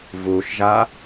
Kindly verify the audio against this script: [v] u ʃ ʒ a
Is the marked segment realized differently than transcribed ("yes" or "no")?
no